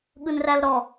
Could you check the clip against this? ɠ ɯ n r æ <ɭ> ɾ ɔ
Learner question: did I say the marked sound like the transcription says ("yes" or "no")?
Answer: no